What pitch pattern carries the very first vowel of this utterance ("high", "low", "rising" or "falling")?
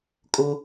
high